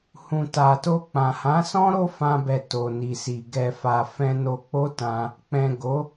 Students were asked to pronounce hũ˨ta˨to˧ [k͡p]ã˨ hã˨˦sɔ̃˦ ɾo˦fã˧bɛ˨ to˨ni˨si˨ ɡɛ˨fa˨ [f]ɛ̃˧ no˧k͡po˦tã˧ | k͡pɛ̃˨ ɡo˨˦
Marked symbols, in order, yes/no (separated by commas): yes, yes